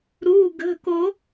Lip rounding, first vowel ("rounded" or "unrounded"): rounded